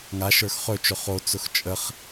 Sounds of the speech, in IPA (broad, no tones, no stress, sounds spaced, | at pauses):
ŋ a ʃ ə˞ x χ ɵ t͡ʃ ɵ χ o t͡s ʊ x t͡ʃʼ ə χ